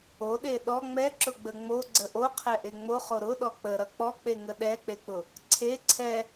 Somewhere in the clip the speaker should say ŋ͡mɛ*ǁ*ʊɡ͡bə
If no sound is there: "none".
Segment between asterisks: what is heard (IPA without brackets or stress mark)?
ǁ